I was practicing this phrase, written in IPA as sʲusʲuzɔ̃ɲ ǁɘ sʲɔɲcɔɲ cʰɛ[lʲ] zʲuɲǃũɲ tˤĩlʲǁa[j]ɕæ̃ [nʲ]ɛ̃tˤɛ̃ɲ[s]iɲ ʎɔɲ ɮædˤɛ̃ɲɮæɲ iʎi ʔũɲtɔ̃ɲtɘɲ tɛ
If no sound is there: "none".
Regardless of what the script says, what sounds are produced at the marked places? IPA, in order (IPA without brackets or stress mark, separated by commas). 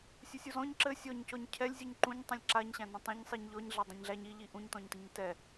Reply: lʲ, ɲ, n, sˤ